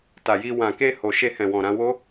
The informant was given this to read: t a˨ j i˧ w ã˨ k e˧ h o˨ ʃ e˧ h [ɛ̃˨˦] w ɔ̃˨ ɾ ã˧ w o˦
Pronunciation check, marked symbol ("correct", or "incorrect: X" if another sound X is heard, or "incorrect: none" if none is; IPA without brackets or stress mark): incorrect: ɛ̃˨